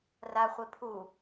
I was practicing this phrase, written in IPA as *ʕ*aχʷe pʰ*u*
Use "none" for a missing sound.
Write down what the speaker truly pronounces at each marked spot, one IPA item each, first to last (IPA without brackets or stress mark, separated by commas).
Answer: r, u